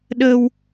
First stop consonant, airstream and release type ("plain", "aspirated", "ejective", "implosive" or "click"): implosive